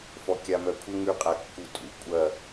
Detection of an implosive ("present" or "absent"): absent